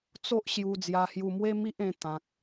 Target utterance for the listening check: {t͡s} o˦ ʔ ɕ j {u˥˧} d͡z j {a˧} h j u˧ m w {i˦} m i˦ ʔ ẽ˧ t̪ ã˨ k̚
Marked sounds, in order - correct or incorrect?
correct, incorrect, correct, incorrect

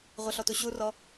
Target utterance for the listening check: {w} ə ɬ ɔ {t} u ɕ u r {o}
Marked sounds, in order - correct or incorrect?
incorrect, correct, incorrect

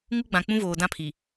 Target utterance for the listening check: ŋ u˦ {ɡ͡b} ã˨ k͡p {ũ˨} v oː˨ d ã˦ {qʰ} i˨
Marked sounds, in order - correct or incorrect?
correct, incorrect, incorrect

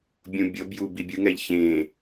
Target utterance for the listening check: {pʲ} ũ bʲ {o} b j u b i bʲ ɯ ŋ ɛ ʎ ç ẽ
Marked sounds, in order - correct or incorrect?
incorrect, incorrect

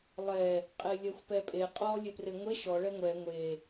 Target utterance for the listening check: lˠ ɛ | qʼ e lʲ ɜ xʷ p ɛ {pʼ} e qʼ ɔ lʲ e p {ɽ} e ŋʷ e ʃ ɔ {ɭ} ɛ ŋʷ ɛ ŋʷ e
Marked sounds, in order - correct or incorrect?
correct, incorrect, correct

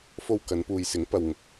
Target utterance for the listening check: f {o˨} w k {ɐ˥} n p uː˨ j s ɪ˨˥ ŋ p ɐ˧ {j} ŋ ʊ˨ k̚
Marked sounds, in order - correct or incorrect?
incorrect, incorrect, incorrect

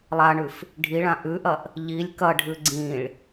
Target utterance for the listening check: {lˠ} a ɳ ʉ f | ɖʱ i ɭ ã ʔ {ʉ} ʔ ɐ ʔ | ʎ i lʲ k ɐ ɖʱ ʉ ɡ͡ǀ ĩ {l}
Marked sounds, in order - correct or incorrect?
correct, correct, incorrect

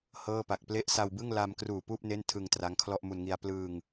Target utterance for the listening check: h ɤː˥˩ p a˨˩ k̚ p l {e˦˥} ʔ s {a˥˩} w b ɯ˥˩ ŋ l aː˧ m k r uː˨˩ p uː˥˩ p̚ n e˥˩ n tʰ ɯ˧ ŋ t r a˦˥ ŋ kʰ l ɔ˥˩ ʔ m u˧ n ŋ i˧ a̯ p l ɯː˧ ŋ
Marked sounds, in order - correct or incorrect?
correct, incorrect

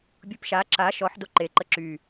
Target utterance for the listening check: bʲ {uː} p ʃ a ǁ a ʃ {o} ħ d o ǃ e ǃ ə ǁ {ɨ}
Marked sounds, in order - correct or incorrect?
incorrect, incorrect, incorrect

